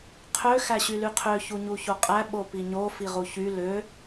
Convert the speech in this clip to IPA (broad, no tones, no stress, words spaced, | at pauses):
qʰø xæɕylyqʰø çuɲuçoqʼæ ɓopiɲo fiʁuçy lø